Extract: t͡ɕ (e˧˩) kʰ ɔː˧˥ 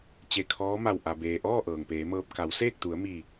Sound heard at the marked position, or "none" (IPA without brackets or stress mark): e˧˩